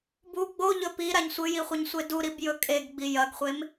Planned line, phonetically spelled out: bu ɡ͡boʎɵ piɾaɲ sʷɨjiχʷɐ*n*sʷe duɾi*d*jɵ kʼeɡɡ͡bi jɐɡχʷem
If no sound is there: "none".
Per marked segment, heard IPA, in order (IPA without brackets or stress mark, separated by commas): ɲ, b